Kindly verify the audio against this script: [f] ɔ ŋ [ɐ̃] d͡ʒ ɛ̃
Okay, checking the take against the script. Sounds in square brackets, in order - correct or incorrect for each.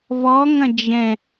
incorrect: v, correct

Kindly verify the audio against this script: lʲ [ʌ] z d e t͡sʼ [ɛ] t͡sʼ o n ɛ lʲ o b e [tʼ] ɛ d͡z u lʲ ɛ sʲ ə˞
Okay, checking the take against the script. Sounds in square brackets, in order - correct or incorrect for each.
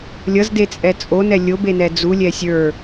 correct, correct, incorrect: n

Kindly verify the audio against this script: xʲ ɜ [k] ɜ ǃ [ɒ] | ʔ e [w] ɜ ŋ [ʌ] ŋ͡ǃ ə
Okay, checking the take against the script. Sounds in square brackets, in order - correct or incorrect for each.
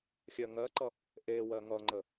incorrect: ŋ, incorrect: ʌ, correct, correct

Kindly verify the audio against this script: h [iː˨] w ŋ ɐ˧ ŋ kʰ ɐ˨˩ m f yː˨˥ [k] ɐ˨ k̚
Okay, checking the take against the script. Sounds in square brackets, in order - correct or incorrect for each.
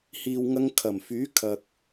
correct, incorrect: kʰ

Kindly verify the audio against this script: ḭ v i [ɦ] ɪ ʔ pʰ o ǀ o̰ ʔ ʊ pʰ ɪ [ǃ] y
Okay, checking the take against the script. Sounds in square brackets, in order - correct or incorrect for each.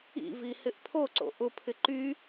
incorrect: h, correct

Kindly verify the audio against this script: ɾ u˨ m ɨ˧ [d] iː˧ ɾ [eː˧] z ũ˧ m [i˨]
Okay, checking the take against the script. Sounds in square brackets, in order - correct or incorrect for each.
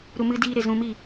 correct, incorrect: e˧, incorrect: i˦˨

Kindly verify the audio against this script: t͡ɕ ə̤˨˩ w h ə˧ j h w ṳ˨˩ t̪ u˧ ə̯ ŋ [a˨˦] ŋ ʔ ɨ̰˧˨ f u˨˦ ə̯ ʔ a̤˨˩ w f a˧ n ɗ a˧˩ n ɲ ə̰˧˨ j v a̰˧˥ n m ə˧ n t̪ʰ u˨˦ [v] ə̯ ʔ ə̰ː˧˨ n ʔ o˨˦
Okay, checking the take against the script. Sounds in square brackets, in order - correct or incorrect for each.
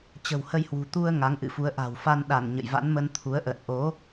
correct, incorrect: none

